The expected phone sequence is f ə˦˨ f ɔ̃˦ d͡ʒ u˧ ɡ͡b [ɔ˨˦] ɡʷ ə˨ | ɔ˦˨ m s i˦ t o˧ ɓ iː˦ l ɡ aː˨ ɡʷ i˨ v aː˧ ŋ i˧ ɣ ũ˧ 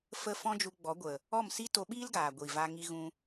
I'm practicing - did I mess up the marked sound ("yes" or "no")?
no